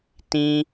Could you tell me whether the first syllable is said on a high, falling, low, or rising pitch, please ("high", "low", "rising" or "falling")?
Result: high